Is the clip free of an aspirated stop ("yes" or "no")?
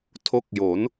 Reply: no